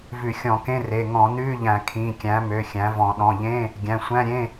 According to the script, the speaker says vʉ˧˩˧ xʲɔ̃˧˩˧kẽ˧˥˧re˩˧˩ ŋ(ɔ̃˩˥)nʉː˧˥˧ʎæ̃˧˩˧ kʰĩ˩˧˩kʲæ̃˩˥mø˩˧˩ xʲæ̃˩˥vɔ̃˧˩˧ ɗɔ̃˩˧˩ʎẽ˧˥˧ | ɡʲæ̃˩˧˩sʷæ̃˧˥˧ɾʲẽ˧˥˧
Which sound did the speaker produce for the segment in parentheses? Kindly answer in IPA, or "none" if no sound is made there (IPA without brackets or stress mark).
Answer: ɔ̃˧˩˧